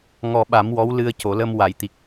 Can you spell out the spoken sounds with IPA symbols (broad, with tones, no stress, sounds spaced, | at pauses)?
ŋ ɔ˧ ɓ a˨˩˦ m w ɔ˧˥ w l ɨ˧ ə̯ c o˨˩˨ l ə˧ m w a˨˩˨ j t̪ i˨˩ k̚